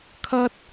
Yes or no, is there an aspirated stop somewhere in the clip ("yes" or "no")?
yes